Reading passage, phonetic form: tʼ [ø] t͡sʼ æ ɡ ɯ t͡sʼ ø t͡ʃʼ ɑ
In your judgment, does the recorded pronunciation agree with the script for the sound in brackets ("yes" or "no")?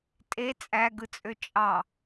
no